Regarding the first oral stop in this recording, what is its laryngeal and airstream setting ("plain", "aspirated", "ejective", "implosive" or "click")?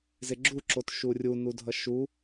click